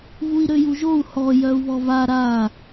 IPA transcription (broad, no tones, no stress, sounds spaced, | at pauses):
v u i̯ ɾ ø j u ʒ o u̯ h ɔ j œ u̯ β ɔ v a ɾ a